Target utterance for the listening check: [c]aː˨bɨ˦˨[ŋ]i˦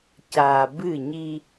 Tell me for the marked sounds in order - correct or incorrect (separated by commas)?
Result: correct, incorrect